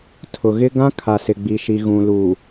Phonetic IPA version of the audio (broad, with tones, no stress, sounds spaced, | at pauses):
tʰ ʊ˨ ɣ ɪ˦ ɡ ã˦ kʰ a˨ s ɪ˨ ɡ͡b i˨ ʃ i˨ ɣ ũ˨ l u˨